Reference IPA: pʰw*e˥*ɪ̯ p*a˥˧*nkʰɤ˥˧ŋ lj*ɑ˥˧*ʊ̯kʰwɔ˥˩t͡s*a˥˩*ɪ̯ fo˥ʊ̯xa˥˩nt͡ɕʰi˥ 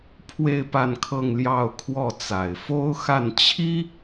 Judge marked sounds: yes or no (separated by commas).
no, yes, yes, no